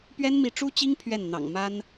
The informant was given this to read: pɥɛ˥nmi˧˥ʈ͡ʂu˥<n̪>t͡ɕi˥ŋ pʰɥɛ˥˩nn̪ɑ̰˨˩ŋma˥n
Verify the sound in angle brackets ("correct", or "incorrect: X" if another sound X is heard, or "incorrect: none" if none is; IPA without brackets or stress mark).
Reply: incorrect: none